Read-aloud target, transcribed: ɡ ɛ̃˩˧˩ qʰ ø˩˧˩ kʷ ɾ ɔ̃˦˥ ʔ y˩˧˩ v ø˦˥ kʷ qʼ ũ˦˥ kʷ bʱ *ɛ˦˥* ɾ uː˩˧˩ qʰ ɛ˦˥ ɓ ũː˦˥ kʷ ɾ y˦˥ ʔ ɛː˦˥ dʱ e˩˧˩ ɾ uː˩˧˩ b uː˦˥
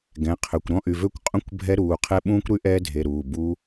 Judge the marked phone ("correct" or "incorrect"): correct